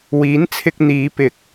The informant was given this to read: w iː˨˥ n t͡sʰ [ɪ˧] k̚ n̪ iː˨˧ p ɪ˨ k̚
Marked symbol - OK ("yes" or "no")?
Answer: yes